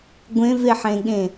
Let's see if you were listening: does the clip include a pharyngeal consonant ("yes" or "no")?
yes